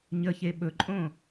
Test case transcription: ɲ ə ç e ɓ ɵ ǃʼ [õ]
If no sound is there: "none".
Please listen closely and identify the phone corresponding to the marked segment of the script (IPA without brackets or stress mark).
õ